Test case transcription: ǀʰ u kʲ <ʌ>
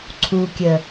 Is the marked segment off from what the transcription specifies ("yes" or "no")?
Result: yes